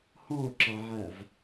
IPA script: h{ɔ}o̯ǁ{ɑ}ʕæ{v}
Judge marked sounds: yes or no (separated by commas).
no, yes, yes